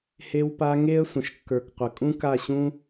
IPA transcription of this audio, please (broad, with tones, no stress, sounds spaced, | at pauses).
h e˧ w p a˧ ŋ e˦ ə̯ sʷ ə̃˨ ʃ kː ə˞˨ k qʷ ə˨ kʼ ũ˦ k a˦˨ ɕ ũ˦